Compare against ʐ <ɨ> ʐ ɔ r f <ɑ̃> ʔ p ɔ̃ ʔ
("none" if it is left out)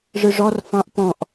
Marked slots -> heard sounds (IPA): ɨ, ɑ̃

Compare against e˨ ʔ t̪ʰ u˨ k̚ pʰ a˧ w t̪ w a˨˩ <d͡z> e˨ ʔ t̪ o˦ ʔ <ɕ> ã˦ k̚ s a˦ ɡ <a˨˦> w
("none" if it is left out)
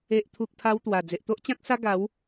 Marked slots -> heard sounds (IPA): d͡z, t͡ɕ, a˨˦

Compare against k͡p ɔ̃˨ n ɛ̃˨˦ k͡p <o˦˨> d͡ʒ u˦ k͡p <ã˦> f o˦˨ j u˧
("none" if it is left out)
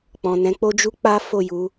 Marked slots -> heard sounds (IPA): o˦, a˦

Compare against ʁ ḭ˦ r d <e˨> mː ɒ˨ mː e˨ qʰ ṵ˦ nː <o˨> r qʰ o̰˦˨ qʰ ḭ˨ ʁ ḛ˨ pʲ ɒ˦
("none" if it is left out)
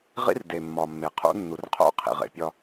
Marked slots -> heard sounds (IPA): e˨, u˨

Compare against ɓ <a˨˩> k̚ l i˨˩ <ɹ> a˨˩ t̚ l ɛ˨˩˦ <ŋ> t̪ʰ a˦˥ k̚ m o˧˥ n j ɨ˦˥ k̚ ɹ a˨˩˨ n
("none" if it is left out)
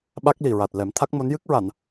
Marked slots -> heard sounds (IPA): a˦˥, ɹ, m

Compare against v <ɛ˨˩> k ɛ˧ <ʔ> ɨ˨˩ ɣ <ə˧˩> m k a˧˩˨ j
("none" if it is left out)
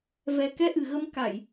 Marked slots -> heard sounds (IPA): ɛ˨˩, ʔ, ə˨˦

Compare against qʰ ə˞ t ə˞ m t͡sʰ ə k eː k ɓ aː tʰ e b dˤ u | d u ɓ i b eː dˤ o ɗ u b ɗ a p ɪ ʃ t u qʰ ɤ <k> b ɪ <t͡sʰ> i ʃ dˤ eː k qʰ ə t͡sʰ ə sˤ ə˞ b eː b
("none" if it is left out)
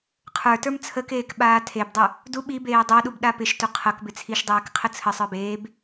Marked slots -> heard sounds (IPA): k, t͡sʰ

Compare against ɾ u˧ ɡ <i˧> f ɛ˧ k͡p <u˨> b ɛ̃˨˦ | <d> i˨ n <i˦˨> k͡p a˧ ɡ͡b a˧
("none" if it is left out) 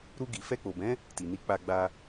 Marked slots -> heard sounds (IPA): i˨, o˨, t, i˨˦

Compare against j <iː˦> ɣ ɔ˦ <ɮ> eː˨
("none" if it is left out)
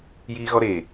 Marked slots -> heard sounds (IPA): iː˦, ɾ

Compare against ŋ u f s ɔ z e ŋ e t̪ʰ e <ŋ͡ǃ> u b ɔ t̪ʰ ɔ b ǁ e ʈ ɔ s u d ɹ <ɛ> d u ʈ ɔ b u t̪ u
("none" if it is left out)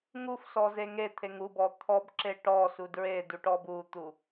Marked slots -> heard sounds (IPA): ŋ, e

